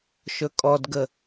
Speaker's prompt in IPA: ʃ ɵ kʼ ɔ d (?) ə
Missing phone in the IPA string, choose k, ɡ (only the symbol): ɡ